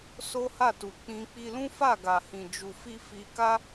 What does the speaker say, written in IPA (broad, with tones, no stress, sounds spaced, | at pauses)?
s o˦ h a˦˨ t u˨ k͡p ĩ˧ k͡p i˧ l ũ˦ f a˦˨ ɡ a˨ h ĩ˨ d͡ʒ u˨ f i˧ f i˧ k a˦